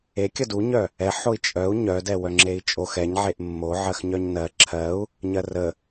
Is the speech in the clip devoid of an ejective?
no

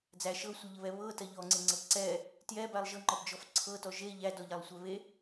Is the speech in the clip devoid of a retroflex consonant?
yes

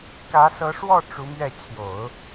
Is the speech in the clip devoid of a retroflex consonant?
no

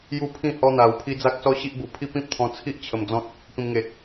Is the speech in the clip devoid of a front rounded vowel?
yes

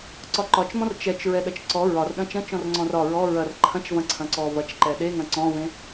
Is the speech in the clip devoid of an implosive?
no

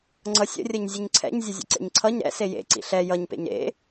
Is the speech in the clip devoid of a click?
no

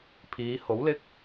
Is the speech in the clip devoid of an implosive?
yes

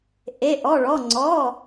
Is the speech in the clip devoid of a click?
no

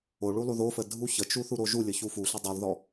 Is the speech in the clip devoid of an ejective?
yes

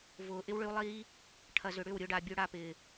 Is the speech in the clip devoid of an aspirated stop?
no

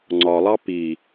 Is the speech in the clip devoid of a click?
no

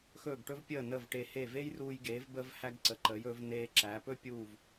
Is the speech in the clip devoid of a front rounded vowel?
yes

